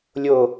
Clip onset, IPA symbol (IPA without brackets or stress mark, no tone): lʲ